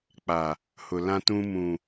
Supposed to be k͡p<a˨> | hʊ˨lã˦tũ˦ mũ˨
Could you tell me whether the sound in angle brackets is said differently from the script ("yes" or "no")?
no